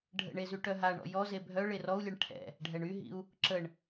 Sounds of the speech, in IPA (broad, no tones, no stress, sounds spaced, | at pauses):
ɖʱ ə̰ ɳ e z y ʈ œ ɦ a ɳ ɔ̰ j ɔ z e bʱ œ ɭ e r ɔ u̯ lʲ e ɳ ʈʰ ɛ̰ | ɖʱ ɛ ɳ y ɦ ḭ u̯ | ǁ ə ɳ